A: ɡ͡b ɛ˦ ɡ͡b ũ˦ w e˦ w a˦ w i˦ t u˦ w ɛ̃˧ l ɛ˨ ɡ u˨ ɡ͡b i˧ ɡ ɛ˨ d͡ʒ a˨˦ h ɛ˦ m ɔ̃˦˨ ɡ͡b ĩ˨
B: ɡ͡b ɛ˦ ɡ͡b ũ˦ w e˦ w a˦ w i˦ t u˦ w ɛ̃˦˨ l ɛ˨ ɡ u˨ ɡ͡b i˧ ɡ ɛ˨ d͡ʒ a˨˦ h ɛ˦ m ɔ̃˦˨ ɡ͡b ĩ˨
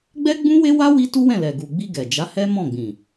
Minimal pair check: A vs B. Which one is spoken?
B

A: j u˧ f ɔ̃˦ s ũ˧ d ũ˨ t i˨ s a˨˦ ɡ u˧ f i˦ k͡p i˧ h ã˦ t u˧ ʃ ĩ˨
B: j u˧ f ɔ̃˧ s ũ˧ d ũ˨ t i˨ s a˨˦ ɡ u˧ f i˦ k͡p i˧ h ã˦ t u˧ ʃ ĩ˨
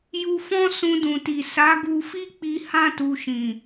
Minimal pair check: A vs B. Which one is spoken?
A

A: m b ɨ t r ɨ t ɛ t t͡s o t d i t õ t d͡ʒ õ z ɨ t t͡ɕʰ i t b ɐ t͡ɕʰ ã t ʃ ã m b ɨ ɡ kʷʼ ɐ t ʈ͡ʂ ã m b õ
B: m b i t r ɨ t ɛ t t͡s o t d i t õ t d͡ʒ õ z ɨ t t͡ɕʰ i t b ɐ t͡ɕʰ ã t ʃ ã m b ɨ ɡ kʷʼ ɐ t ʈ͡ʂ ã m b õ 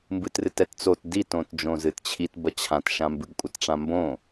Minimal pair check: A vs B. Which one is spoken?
A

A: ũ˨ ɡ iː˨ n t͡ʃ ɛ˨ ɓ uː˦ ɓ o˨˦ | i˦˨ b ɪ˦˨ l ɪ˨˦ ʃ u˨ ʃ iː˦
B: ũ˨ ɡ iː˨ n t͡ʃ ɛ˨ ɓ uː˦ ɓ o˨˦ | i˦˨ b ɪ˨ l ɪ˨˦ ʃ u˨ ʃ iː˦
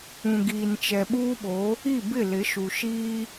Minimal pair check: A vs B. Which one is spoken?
A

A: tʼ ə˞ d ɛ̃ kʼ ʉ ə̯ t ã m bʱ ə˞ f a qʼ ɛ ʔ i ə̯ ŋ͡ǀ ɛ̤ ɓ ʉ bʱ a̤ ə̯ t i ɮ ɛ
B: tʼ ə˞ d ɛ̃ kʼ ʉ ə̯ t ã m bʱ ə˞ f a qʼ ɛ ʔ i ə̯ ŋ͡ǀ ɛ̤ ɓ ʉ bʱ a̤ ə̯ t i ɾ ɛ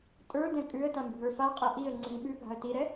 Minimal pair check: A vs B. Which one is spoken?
B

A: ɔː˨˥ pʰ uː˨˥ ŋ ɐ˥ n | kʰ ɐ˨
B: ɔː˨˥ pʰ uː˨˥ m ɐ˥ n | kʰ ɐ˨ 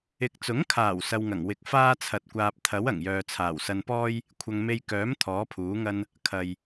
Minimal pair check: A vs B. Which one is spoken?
A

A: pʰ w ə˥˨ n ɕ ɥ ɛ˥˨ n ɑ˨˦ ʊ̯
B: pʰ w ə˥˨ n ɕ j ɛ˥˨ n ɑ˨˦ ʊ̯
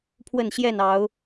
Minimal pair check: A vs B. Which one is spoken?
B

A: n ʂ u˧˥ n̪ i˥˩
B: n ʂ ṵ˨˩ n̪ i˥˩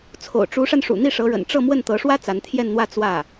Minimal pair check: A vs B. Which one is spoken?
B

